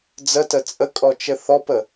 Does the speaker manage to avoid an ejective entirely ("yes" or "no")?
no